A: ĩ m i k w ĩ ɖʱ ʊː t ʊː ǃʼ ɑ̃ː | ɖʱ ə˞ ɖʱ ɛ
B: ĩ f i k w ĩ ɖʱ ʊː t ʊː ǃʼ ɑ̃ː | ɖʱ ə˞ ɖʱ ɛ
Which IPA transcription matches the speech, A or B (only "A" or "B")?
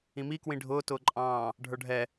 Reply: A